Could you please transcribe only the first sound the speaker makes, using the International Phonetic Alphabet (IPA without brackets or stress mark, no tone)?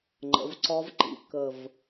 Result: ŋ͡ǃ